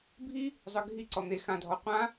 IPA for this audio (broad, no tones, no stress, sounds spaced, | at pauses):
bʱ i | zˤ œ ɡʱ i ǀ ɔ n̪ e x ã dʱ ɔ qʷ ã